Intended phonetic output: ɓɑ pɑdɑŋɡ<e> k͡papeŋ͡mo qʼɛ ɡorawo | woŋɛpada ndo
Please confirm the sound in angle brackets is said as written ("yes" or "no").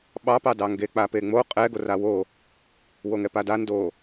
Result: yes